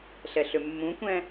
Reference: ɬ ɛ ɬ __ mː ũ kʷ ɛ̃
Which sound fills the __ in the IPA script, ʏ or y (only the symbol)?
ʏ